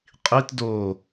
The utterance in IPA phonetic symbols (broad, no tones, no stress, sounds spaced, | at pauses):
qʼ i t d oː